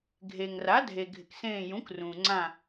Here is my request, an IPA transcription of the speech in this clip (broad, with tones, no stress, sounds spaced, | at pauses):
ɡʱ e˩ ŋ r a˩˥ dʱ e˩ ɡʱ ɪ˩ k s ẽː˧˩ j ũ˩˥ k r ũː˩ ŋ͡ǀ ã˧˩